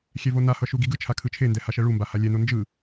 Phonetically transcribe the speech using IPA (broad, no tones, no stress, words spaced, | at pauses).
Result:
xʲɛvonahʌ ʃuɡiɡɯt͡ʃʰa kʰɯt͡ʃʰendɛ haʃɛɭumba halʲɛno nd͡ʒɯ